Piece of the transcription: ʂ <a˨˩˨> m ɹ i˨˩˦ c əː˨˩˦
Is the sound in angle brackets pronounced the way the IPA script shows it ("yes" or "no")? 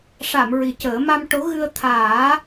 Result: yes